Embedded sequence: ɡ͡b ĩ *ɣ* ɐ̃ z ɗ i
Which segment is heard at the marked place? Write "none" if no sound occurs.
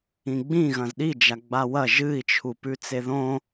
ɣ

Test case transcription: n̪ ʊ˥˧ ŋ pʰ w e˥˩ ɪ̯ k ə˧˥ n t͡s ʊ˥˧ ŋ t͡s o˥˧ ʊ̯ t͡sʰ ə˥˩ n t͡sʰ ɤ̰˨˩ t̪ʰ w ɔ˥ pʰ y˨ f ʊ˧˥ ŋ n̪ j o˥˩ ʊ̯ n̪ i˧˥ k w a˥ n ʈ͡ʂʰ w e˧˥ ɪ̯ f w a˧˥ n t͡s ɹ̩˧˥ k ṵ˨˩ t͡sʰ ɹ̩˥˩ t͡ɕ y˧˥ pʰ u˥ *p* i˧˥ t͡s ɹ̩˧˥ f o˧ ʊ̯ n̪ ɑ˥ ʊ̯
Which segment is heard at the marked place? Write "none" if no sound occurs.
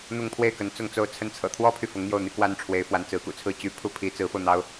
pʰ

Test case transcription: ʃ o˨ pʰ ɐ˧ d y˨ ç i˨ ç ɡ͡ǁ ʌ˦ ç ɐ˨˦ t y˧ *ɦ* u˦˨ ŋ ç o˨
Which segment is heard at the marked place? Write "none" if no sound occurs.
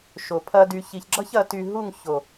ɦ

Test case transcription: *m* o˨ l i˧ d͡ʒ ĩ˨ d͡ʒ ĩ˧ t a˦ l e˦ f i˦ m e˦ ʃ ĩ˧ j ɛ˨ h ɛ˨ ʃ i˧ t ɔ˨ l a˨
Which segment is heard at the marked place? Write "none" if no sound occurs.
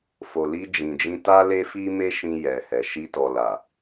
f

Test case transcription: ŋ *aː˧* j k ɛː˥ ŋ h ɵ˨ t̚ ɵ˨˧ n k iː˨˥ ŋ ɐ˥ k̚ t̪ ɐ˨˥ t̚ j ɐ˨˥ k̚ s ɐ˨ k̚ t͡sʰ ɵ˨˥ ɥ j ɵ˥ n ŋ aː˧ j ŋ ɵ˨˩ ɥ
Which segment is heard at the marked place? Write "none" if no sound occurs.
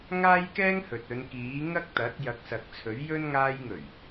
aː˥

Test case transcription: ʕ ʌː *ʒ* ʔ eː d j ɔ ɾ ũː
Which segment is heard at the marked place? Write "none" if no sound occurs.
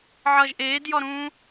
ʒ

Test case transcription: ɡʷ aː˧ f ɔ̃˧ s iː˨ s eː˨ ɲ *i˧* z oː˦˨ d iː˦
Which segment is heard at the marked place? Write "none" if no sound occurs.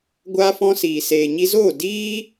i˧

